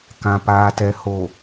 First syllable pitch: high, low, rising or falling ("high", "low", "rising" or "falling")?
low